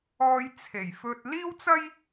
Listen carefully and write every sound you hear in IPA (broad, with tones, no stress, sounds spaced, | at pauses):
ɔː˧ j t͡sʰ e˨˩ j f ɵ˧ t̚ l iː˥ w t͡s ɐ˥ j